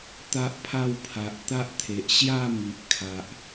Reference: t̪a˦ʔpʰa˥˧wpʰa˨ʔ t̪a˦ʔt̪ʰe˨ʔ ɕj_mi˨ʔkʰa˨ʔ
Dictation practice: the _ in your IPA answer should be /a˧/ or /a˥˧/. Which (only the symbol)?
a˥˧